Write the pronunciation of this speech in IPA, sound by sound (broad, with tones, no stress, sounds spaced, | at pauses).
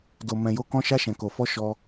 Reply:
d o˨ m ɛ̃˨ j o˨˦ k ɔ̃˧ ʃ a˧ ʃ ɛ̃˨ k o˨ f ɔ˧ ʃ ɔ˧